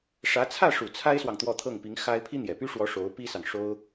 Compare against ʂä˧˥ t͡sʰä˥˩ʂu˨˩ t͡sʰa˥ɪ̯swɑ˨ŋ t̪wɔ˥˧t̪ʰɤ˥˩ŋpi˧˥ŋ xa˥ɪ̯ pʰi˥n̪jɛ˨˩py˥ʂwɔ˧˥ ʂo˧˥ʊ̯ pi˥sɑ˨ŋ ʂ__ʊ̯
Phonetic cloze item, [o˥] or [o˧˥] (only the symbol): o˥